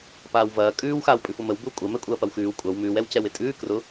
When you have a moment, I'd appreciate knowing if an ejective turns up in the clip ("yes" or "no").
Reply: yes